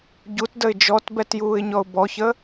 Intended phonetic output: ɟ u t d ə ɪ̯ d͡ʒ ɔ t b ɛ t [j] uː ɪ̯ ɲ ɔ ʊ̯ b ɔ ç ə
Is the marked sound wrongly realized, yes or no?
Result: no